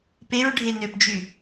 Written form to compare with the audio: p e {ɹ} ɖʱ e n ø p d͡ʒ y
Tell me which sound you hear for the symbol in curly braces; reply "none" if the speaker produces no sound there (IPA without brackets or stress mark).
ɹ